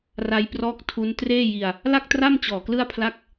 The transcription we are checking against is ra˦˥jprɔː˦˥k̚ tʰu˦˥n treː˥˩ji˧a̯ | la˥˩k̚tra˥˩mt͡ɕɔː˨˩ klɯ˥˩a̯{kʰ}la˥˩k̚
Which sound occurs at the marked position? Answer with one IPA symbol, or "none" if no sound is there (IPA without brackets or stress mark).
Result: pʰ